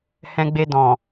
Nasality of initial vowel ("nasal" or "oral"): nasal